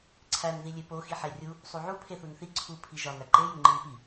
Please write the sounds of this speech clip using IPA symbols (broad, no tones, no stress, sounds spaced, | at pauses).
ǀʰ æ n ð i lʲ e p o x i ħ e rʲ u | sˤ u ʕ u pʰ e θ u n θ i ǀʰ u pʰ i ʒ ɒ n æ ǃ e j u ŋ͡ǃ i n p i